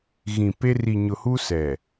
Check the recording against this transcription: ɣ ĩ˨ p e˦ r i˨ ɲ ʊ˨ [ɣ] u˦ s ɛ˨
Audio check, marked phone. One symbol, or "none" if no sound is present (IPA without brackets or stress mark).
h